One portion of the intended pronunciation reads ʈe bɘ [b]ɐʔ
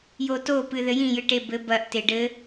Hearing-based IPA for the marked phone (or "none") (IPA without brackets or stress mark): b